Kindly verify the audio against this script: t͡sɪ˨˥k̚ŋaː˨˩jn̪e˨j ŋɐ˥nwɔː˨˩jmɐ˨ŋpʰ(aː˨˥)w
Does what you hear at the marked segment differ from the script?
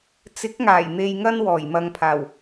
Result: yes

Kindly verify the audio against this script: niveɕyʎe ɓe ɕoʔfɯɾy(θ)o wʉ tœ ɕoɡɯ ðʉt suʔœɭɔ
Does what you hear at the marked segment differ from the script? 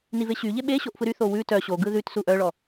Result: no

